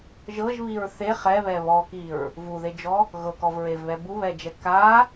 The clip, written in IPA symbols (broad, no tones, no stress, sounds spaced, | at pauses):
ʒ ɤ ʒ β i ɹ θ e χ ɛ β ɛ β ɔ k i ɹ | v u ð e d͡ʒ ɔ | ɣ ɤ k ɔ v ɹ e v β ɛ b u β ɛ d͡ʒ ɛ k a